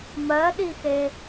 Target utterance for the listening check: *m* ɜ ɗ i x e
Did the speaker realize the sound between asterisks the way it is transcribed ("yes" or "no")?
yes